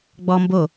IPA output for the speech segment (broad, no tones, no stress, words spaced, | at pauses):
ɡ͡bɔ mbo